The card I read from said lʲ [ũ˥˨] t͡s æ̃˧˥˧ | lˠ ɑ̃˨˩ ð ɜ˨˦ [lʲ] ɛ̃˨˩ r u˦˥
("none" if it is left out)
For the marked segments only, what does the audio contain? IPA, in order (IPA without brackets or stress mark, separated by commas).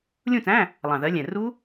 ũ˥˨, lʲ